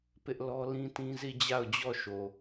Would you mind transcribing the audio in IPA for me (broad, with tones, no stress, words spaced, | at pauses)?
pɪ˦ʔlɔ˦lĩ˦tĩ˦ zi˦˨d͡ʑa˦˨ʊ̯d͡ʑɔ˦˨ ʃo˨